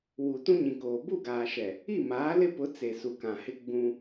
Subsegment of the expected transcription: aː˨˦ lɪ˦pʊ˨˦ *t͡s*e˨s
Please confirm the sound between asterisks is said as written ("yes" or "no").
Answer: yes